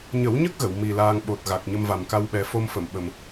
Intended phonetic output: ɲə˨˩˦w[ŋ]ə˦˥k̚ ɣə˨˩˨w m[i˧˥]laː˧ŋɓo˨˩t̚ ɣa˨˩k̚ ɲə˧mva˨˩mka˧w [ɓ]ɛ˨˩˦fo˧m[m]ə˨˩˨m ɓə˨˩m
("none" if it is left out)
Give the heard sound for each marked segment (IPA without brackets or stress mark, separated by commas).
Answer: ɲ, i˨˩, ɓ, f